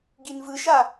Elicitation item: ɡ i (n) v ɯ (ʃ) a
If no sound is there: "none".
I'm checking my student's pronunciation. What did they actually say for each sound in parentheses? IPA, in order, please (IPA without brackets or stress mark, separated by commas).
n, ʃ